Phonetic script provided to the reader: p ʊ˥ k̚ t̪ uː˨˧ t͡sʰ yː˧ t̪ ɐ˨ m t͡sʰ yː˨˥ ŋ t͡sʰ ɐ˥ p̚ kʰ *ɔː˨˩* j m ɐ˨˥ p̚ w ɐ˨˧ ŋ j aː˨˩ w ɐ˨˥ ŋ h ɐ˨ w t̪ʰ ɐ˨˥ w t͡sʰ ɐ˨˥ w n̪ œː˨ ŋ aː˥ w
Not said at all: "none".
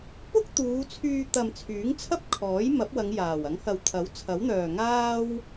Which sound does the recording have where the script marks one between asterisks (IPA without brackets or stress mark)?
ɔː˨˥